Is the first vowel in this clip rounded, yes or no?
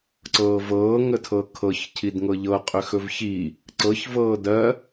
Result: no